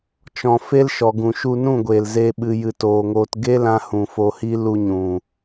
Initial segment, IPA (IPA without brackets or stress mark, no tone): t͡ʃ